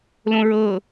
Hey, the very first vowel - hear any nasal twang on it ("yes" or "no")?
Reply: yes